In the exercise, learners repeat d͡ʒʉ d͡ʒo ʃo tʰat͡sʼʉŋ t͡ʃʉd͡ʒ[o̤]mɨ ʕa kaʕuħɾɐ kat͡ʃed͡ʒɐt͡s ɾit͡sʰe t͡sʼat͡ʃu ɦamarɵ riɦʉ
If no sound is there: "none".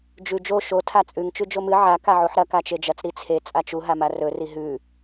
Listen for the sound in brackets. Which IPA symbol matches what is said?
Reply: o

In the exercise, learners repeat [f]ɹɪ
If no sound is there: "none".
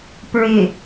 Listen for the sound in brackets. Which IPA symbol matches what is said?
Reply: p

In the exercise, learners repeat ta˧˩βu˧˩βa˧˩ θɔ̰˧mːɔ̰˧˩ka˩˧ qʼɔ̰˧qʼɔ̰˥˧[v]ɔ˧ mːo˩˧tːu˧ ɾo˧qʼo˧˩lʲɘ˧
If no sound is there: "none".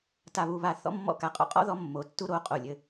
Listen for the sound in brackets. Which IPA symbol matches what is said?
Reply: ð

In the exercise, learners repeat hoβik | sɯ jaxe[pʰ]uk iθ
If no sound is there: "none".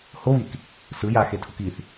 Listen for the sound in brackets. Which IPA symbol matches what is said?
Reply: tʰ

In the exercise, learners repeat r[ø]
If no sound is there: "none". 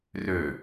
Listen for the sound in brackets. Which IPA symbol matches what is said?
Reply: ø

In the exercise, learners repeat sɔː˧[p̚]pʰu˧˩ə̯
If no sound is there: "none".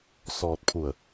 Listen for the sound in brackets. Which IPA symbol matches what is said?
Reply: t̚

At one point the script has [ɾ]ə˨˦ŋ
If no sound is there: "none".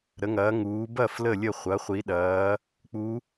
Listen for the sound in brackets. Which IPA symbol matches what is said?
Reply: ɾ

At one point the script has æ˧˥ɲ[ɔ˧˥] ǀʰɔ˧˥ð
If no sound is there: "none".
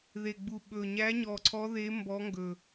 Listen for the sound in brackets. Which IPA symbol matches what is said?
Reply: ɔ˨˩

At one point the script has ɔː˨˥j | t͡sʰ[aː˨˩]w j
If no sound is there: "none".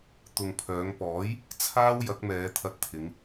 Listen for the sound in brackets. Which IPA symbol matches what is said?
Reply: aː˥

